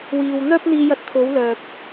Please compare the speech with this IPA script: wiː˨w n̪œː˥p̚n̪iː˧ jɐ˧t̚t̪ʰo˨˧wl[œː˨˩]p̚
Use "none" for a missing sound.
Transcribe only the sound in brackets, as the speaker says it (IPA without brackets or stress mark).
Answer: œː˨